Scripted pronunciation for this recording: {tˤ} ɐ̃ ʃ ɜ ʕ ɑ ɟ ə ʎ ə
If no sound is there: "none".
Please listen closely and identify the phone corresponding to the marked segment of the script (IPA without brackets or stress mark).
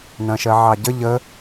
n